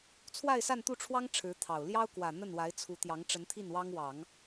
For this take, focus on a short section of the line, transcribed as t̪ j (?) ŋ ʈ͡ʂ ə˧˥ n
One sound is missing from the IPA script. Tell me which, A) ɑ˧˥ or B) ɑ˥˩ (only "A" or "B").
A